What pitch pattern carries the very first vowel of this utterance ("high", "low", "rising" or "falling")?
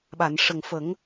low